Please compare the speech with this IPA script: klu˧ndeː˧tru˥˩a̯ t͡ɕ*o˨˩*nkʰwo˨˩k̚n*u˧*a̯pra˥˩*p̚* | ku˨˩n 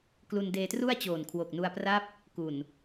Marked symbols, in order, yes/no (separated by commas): no, yes, yes